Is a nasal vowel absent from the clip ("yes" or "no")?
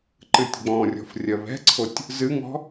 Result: no